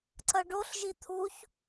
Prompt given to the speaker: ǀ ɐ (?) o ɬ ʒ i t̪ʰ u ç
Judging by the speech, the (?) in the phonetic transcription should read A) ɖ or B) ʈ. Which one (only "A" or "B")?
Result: A